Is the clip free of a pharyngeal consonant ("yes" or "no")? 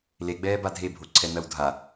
yes